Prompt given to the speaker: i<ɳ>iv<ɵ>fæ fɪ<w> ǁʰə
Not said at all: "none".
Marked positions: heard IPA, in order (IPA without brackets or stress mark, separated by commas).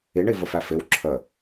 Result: ɳ, ə, w